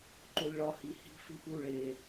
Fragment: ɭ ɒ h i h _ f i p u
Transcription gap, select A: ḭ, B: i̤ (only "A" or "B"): B